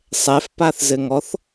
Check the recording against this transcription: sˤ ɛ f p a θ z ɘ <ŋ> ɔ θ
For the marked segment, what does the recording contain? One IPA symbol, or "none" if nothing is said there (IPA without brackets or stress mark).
ŋ